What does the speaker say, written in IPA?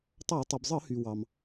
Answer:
tˤɑ˧˩˧ tˤɯ˩bzˤɯ˧˩˧hy˩ wɑ˩m

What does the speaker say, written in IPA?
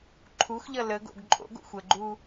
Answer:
ǃʰuxʎʌ ləɡo̰ɡ ǃʼo̰ɡo̰xʷ əɡ͡ǃu

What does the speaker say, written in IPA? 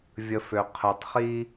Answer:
vʲə˧fø˨ qʰə˨˦tˤχi˦

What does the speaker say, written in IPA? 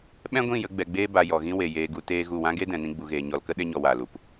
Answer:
ɓɛ̃˦ɡʷĩ˦˨jə˧ ɡ͡bɛ˨ɡ͡beː˧ba˨ jɔ˨ɣĩ˦ we˨ jeː˨ɡu˨ teː˦ɣu˦˨ wã˦ɡe˦dɛ̃˨nĩ˧ ɡ͡bu˨ɣeː˨ ɲɔ˨lkə˦ ɗe˦ɲɔ˧waː˨lu˨p

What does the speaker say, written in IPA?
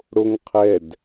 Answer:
ɽoŋqʰɛd

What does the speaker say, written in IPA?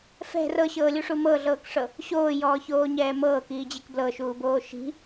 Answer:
fɛ̤ rɤɕɤːlʲuʂu mɤɮɤːkʂɤ | ɕoːjɔːçoːɲɛː mɤːkiːd͡ʑek blɤʃuːboː ʃi̤

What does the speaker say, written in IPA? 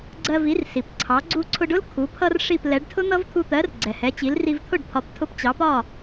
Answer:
ɡ͡ǀɜ˧vi˩˥rsi˩p ǀʰɑ˩˥ ɡ͡ǀu˧ǀʰʊ˧ɖʊ˥l kʰu˩˥pʰʌ˥rʂi˥˩p lɛ˩˥ɖtʰʊ˥n̪ʌ˥v t̪ʰu˧t̪ɜ˩˥r ɡ͡ǀɛ˩hɛ˩˥t͡ɕi˩˥l ri˧vt̪ʰʊ˥˩ɖpʰɒ˩˥p tʰʊ˧pt͡ɕɑ˩˥pɒ˥˩

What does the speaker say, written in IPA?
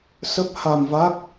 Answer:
sə˦˥p̚ha˧mva˦˥k̚

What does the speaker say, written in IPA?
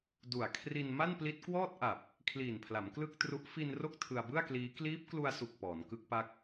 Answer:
du˨˩a̯kʰri˧n ma˥˩npli˦˥t̚kwɔː˥˩t̚ʔa˨˩p̚ | kʰliː˨˩npʰla˩˦m klɯ˥˩k̚tru˦˥ʔ fi˧n ro˥˩k̚tʰɯ˧a̯bɯ˥˩a̯kliː˦˥ kliː˦˥p̚klu˧a̯su˨˩k̚ pɔː˩˦nkɯ˦˥k̚pa˦˥k̚

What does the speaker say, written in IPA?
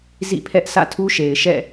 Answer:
zḭ˦˨pʰɛ˦ʔ sä̰˦˨tʰu˦ʃe˨ɪ̯ʃɛ̰˦˨

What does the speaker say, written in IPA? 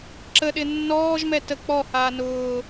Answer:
ǁəɗɪ nːɔːʒmɛ tə k͡pɔhaː nʊː

